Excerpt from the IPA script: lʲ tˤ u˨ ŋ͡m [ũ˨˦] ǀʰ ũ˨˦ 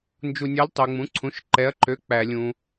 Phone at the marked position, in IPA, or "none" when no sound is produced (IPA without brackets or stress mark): ũ˨˦